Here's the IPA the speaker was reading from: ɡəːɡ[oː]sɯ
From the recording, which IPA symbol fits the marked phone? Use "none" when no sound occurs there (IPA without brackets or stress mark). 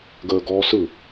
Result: ɔː